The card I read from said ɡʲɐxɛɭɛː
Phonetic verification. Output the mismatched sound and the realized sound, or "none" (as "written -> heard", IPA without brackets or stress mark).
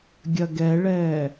x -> ɡ